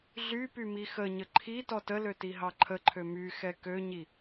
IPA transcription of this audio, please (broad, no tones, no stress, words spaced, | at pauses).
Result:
ɮy pymixəɲə ǃʰi tɔtəlø tiɦɑǃʰəǃʰø myxɛ køɲi